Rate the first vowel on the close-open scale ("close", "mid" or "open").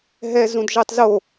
mid